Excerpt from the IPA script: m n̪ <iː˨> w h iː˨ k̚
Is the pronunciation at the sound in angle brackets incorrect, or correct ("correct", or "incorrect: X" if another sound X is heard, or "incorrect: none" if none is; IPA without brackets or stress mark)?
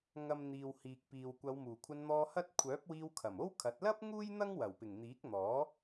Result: correct